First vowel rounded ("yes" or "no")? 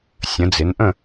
no